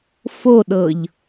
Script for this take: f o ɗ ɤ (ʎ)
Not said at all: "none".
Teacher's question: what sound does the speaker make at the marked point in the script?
ʎ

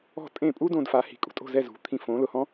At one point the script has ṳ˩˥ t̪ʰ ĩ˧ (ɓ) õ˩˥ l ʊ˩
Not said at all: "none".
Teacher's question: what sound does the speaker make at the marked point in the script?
f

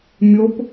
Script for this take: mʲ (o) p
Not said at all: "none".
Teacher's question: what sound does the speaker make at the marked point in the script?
o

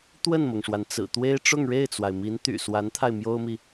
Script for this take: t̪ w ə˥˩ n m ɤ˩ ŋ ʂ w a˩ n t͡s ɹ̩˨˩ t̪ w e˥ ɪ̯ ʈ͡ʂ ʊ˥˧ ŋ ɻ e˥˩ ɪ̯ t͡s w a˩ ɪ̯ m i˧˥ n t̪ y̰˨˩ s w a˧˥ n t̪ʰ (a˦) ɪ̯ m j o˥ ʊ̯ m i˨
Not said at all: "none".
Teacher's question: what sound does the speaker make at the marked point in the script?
a˧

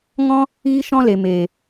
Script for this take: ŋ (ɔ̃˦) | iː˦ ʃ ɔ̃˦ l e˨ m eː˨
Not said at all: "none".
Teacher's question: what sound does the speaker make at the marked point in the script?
ɔ̃˦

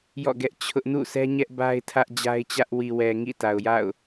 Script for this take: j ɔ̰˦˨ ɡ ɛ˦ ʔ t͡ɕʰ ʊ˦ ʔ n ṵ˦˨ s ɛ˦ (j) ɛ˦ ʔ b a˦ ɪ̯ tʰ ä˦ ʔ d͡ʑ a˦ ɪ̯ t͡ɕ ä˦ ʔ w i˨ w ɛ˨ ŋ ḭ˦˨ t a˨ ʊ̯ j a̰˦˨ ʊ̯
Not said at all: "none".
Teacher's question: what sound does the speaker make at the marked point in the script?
ɲ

